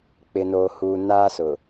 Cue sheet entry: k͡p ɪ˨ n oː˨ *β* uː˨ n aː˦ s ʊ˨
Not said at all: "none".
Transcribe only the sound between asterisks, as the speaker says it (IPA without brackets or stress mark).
h